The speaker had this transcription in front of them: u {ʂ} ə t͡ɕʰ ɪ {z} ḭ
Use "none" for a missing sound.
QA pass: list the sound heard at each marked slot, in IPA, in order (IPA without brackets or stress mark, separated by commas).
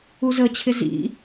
z, z